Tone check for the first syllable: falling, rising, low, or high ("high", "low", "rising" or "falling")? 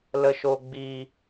low